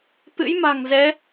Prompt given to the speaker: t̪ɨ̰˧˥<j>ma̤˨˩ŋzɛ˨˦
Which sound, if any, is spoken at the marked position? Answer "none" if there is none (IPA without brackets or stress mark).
j